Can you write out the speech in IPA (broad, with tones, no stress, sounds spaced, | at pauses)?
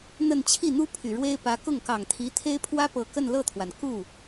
n̪ ə˥˧ n t͡ɕʰ i˥˩ n̪ u˥ pʰ y˨˩ ɻ w e˥ ɪ̯ p ä˧˥ k ʊ˥˩ ŋ k ɑ˨˩ ŋ t̪ʰ i˧˥ t̪ʰ e˥ ɪ̯ pʰ w ä˥ p ɤ˨˩ k ə˥˧ n l ɤ˥˩ t̪ʰ w a˩ n k u˥˩